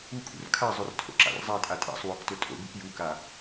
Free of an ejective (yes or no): no